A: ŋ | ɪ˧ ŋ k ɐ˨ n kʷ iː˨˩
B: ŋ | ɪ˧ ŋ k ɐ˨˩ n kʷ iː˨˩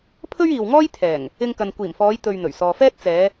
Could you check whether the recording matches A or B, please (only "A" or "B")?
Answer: A